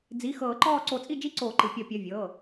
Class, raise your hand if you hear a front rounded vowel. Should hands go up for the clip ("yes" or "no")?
no